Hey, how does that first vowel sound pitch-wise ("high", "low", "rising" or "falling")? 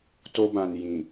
high